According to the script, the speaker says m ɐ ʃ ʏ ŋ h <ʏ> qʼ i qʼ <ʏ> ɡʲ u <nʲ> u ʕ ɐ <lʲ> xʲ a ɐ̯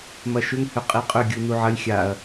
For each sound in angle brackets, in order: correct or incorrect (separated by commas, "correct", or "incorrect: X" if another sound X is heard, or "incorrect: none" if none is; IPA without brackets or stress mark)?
correct, correct, incorrect: n, correct